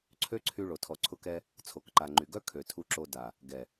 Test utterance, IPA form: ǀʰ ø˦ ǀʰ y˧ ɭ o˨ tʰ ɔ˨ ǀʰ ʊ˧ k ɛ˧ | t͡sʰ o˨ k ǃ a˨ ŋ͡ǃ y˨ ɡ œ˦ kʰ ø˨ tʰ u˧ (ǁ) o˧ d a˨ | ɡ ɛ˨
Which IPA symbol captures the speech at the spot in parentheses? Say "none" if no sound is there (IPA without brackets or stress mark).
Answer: ǁ